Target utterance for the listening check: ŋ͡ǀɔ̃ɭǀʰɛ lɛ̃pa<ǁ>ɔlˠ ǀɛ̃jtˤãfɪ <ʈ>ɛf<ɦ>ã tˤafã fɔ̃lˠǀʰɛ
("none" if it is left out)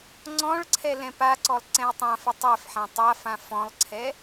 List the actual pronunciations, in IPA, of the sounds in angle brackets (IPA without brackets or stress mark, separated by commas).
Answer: ǀ, tˤ, ħ